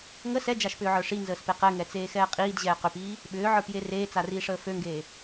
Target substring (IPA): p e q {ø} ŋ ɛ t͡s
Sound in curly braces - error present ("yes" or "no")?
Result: yes